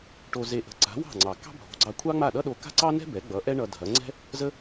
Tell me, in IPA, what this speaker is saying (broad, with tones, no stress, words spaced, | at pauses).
ʈo˧ze˧ ʔə̤˧ ǀa̤˩˥wɑ̤˥˩ŋ͡ǀɑ˩ kɑ̤˥bʱo̤˩˥ɡ͡ǀɑ˧ kʷʰɑ˥ŋ͡ma˥˩ɗʌ˥ɗo˧ ka̤˥ǀɑ˥nɛ̤˥ bɛ˩˥ɡ͡bʌ˩˥ʔɛ˥ɳʌ˧ dʱɐ˩˥ ŋ͡ǀɛ̤˥ | zə˥